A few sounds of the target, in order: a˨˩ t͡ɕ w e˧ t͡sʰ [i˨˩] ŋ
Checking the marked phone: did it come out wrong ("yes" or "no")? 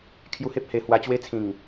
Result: yes